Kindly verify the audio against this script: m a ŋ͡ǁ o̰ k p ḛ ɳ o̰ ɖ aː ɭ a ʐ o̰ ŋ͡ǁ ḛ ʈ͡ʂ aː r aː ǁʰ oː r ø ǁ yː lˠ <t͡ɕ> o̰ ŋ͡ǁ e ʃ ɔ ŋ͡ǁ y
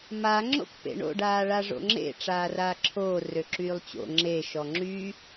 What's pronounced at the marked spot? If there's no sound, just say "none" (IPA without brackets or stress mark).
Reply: t͡ɕ